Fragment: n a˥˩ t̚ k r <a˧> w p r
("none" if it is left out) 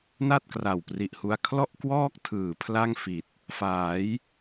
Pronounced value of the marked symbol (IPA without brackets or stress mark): a˨˩